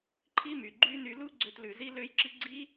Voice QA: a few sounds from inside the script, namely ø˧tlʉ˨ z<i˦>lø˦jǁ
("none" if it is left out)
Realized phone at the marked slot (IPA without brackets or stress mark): i˦